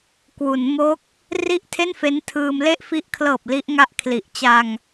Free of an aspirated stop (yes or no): no